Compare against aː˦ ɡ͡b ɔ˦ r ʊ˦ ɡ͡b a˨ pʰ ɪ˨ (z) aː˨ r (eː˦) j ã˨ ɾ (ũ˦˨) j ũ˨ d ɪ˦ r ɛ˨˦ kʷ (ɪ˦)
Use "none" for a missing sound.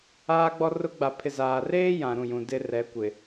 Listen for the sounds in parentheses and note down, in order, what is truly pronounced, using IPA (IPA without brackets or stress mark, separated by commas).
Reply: z, eː˦, ũ˦˨, ɪ˨